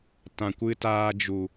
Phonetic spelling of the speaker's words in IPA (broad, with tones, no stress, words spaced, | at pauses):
tã˨kʷɨ˧taː˧ d͡ʒu˨